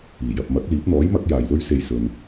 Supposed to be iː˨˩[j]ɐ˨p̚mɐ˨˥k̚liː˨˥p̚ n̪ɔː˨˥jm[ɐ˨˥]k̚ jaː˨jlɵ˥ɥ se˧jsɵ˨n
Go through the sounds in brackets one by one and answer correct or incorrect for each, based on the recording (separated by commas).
correct, correct